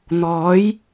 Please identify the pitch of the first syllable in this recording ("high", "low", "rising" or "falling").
rising